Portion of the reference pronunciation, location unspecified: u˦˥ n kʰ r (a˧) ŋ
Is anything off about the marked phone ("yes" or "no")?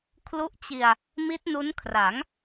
yes